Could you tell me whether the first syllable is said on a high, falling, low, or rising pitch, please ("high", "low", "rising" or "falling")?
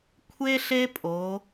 high